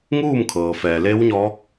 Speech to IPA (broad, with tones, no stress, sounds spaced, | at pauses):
ŋ uː˥˨ m kʰ ɤː˩ f ɛː˩ l e˧˥ w ɲ ɔː˧˥ k̚